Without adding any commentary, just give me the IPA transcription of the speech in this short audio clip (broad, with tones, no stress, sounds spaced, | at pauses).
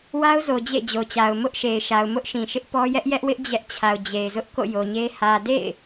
w a˦ ʊ̯ z o˨ d͡ʑ ḛ˦˨ d͡ʑ o˨ t͡ɕ a˨ ʊ̯ m ʊ˦ ʔ ʃ e˨ ɪ̯ ʃ a˨ ʊ̯ m ʊ˦ ʔ ʃ ĩ˨ ʃ ɪ˦ ʔ p ɔ˦ j ɛ˦ ʔ j ɛ˦ ʔ w ɪ˦ ʔ d͡ʑ ɛ˦ ʔ t͡ɕʰ a˨ ʊ̯ d͡ʑ e˨ ɪ̯ z ʊ˦ ʔ k o̰˦˨ j o˨ ɲ e˦ h ä˨ d ḛ˦˨ ɪ̯